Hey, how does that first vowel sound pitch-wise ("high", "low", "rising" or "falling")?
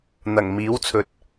low